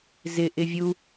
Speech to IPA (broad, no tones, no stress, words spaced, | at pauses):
zɪʔɪ vʲu